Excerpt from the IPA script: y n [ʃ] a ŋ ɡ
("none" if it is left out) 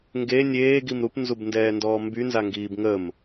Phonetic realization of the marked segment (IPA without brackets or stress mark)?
z